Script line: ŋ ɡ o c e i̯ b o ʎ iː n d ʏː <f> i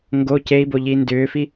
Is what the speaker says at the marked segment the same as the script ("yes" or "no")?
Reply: yes